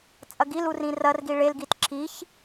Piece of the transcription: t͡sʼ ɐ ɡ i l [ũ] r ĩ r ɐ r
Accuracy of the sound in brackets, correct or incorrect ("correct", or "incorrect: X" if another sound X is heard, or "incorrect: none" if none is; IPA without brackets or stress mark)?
incorrect: u